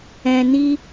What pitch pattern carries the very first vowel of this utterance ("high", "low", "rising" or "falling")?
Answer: low